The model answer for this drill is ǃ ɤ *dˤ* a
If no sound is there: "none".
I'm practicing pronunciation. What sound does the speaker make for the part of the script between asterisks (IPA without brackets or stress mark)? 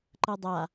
dˤ